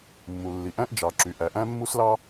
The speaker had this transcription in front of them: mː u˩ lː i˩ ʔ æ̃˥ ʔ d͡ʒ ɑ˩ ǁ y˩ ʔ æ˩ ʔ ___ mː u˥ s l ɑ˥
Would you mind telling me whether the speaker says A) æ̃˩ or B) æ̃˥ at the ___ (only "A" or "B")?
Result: B